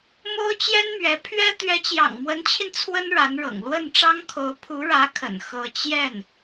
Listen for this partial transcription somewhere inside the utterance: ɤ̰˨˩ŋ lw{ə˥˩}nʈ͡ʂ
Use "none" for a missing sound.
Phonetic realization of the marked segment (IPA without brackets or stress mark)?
ə˥˩